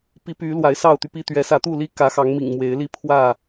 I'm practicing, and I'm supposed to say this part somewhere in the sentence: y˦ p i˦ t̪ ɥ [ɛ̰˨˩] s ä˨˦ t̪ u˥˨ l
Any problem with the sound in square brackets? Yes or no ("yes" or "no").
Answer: yes